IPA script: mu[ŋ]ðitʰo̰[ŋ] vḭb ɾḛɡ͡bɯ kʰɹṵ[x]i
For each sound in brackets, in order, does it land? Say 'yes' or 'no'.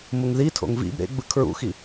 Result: yes, yes, yes

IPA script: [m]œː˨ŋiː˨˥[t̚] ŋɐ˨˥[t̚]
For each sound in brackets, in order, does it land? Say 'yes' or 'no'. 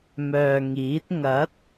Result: yes, yes, yes

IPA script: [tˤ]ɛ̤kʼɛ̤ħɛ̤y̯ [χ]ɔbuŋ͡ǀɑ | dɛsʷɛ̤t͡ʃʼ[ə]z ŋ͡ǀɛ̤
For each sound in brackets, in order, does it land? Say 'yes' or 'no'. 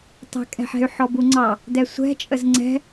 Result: yes, no, yes

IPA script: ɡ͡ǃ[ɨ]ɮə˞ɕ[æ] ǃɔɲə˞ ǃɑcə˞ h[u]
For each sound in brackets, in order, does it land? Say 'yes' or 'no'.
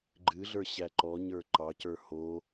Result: yes, yes, no

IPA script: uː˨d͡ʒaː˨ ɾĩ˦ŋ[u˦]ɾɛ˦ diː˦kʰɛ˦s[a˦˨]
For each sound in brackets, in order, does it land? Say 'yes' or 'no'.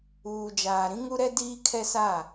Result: yes, yes

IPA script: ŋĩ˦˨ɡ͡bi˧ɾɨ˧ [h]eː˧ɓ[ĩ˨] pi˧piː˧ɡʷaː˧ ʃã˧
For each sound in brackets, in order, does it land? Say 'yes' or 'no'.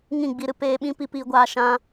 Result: no, no

